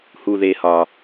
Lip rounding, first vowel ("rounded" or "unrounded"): rounded